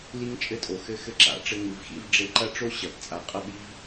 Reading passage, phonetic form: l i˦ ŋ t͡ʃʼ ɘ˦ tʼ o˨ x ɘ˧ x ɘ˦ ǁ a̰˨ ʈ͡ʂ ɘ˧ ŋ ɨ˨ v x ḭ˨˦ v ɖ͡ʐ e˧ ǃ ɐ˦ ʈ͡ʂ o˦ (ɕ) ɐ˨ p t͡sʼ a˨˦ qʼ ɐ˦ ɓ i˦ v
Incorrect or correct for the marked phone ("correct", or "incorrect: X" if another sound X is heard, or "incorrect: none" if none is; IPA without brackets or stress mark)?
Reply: correct